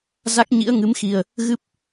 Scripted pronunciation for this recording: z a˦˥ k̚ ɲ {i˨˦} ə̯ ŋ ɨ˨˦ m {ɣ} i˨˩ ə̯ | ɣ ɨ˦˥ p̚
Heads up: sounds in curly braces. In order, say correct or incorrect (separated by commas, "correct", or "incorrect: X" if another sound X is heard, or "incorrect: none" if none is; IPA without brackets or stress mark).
incorrect: ḭ˧˥, incorrect: x